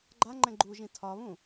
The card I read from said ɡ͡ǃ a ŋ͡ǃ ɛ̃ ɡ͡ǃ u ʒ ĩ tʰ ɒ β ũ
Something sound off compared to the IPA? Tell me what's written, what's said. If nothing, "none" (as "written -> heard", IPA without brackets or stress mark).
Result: none